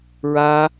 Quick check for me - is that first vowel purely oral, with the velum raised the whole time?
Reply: yes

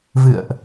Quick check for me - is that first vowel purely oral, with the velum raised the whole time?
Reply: yes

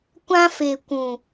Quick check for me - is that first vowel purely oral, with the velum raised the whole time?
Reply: no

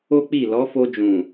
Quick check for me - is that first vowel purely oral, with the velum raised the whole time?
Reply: yes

